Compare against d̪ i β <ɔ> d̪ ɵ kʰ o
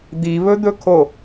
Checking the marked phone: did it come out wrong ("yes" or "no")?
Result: yes